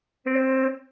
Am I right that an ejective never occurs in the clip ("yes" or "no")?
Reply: yes